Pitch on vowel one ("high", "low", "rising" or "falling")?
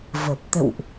low